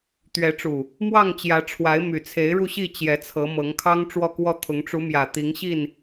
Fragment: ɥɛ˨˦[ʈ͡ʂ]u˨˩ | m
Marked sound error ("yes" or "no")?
no